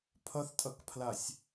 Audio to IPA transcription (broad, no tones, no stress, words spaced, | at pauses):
pʰʌθtʼʌkpʰlasʲ